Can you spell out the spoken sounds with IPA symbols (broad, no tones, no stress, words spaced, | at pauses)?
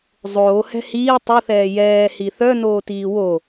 zˤoːhɛ̤ hiː tˤɨθɛː jɛːhi θœnoːtiː wo